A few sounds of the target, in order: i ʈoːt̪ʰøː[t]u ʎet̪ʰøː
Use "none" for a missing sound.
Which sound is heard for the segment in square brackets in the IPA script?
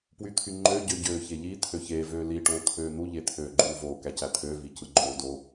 n̪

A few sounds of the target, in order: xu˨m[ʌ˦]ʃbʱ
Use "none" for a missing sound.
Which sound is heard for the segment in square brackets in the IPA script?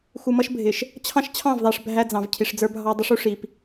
ʌ˦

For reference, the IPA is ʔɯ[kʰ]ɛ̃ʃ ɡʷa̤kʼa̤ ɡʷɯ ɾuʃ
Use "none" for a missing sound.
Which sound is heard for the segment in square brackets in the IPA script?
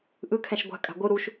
kʰ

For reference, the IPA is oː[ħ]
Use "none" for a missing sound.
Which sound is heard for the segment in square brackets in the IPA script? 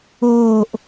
ʔ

